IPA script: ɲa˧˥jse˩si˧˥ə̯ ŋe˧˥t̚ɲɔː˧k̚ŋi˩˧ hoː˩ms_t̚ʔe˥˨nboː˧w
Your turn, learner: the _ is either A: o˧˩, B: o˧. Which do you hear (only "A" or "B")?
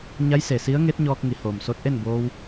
B